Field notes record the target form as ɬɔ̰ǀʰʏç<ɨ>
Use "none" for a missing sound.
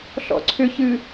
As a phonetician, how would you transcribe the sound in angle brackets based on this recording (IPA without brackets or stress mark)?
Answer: ɨ